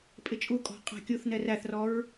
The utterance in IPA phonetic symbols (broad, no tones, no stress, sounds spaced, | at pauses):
pʼ ɪ t͡ʃʼ u kʼ ɔ̤ qʼ æ̤ kʲ u θ n ɛ r æ θ r ɔ ɹ